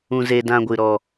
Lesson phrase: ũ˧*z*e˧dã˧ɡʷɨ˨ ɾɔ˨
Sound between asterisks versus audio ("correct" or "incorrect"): correct